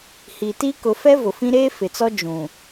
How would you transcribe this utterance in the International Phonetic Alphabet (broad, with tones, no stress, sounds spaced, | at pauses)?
h i˨ t iː˦ k ʊ˨˦ f ɛ˦ v ʊ˨ f ĩ˦ ɾ eː˦ f ɪ˨ t͡s ɔ˦ d͡ʒ ũ˨